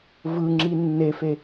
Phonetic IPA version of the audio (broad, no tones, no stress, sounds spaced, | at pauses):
v ɯ ŋ͡ǁ i nː e f e